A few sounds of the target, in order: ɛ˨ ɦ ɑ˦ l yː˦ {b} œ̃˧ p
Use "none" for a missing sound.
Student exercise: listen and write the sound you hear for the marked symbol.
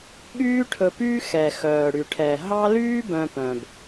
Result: b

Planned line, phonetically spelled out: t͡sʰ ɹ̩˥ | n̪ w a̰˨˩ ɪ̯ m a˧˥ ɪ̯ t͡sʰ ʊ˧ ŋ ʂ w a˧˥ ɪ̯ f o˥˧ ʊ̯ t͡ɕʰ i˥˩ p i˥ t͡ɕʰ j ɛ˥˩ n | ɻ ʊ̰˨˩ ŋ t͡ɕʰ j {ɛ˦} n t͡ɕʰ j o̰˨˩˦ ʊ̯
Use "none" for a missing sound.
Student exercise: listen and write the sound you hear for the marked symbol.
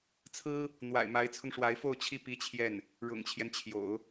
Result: ɛ˦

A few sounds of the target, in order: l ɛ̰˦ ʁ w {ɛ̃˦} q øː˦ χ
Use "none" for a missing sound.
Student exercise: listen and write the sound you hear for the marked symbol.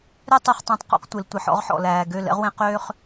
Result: ẽ˦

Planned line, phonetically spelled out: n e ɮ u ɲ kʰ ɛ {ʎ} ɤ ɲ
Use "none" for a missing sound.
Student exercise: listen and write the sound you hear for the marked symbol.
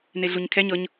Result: ɲ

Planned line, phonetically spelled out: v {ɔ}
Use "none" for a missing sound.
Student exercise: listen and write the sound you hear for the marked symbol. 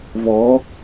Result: ɔ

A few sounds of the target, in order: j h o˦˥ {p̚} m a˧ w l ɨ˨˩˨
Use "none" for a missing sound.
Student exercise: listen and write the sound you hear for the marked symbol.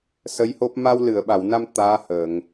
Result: p̚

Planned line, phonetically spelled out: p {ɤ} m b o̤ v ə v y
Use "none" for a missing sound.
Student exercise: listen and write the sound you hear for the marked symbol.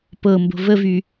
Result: ɤ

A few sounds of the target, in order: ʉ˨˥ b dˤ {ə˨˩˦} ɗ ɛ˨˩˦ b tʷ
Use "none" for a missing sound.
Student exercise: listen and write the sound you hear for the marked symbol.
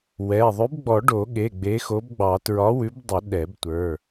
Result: ə˨˩˦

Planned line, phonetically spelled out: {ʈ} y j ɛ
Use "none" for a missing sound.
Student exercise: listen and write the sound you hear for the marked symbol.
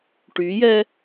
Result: ʈ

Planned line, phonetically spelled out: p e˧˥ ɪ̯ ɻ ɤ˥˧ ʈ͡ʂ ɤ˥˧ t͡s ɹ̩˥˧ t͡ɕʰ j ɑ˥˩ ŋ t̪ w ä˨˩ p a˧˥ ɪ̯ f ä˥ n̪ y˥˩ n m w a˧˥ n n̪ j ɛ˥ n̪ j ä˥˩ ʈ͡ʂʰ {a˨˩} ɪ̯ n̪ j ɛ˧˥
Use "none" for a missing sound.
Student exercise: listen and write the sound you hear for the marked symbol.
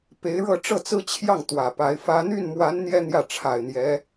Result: a˨˩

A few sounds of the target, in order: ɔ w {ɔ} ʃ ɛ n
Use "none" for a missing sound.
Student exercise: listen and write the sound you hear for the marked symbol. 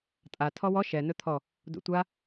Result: ɔ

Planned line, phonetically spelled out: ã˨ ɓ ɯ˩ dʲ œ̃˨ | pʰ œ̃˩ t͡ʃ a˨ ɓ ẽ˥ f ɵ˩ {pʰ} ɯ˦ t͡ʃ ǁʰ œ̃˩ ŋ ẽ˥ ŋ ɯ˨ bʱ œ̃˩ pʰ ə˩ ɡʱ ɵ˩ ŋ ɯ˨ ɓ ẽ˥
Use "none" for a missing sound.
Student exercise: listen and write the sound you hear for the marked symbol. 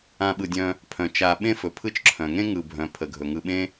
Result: pʰ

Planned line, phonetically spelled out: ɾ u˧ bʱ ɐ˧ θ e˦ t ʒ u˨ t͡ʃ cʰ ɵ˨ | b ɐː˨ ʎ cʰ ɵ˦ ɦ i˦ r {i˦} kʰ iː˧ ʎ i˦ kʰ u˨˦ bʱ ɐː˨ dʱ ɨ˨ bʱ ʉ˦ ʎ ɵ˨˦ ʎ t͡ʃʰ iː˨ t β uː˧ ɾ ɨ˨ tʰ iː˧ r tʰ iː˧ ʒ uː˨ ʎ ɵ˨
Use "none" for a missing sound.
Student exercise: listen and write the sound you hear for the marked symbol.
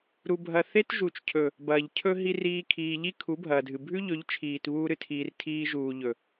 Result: iː˦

